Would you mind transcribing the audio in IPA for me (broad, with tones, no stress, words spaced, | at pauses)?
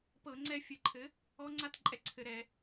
pɤ˧˩˧ŋ͡ǀɛ˧ fʲɘ˧˩˧ǃʰɘ˩˥ | ɔ˧˥ŋ͡ǀa˥˧t ǃʼɛ˥˩ǀʰɘ˧˩˧ɾɛ˧˩˧